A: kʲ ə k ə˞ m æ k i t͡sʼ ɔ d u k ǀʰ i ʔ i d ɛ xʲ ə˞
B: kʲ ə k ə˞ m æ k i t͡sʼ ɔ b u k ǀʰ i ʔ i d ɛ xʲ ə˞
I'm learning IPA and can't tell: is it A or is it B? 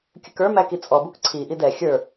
B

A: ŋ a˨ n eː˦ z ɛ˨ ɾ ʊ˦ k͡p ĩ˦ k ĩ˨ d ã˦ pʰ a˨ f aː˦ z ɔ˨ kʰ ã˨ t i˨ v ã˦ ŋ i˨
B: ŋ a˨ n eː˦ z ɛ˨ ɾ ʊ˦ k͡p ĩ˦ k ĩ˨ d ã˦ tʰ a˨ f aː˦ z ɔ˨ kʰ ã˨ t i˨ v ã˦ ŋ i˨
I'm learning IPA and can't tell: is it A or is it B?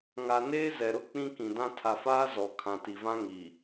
B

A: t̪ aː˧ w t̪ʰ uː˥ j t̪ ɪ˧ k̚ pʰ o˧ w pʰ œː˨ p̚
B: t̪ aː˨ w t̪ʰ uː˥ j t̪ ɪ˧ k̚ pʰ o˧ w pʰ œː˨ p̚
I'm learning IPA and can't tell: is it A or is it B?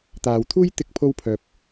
B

